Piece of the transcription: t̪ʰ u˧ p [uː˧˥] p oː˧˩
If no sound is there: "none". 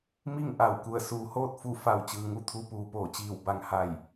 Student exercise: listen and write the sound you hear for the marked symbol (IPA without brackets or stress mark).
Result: uː˩